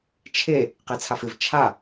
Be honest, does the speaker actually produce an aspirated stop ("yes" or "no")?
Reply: yes